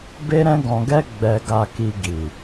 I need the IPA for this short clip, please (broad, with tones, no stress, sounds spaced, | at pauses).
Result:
b e˦ ɾ ɛ̃˦ ɡ ɔ̃˧ ɡ ɛ˦ ɡ͡b ɛ˧ ɡ a˧ k i˧ ɡ i˨